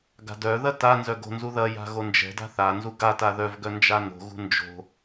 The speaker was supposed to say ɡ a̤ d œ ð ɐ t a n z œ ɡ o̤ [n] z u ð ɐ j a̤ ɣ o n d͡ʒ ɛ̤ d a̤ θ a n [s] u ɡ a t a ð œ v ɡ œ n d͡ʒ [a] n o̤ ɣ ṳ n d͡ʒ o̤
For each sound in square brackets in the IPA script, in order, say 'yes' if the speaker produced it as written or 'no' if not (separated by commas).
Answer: yes, no, yes